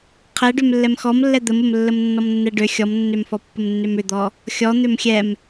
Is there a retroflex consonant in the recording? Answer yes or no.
yes